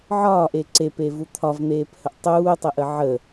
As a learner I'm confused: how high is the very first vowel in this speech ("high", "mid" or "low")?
low